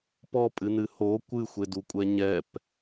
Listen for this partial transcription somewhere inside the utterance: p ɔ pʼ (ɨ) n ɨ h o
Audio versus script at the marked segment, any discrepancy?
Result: no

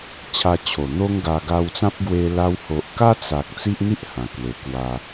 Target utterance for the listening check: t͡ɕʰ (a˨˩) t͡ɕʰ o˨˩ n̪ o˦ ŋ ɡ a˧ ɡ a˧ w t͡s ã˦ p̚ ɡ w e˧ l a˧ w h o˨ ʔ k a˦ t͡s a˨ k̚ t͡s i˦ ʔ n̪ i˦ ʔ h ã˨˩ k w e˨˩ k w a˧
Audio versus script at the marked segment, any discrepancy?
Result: yes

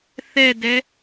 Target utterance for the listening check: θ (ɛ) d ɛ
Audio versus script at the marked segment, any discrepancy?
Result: no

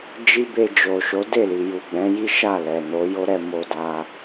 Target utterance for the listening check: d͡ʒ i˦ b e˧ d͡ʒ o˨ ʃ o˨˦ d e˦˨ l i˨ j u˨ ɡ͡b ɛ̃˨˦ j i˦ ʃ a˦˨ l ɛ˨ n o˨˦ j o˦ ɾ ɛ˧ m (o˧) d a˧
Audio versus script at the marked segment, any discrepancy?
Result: no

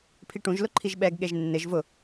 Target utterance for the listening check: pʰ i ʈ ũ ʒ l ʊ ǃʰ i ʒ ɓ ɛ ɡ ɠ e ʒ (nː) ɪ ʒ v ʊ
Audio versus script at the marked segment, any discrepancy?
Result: no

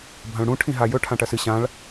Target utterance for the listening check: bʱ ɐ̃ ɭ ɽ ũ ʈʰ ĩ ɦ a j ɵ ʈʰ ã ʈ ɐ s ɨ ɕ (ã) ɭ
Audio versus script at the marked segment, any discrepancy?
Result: no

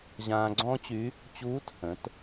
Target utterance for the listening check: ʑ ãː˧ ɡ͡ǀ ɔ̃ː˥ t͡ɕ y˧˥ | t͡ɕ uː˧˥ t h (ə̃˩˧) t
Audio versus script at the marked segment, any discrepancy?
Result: no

